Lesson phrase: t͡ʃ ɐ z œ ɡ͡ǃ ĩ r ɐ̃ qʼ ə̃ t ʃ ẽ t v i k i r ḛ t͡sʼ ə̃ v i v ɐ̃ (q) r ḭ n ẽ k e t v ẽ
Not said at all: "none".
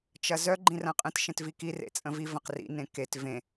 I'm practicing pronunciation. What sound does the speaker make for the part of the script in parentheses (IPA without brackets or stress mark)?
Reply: q